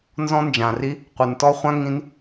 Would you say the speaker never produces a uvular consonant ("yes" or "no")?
no